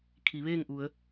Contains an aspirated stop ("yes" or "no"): yes